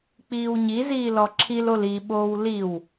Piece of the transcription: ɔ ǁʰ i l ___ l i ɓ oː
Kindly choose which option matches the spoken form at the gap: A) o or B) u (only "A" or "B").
A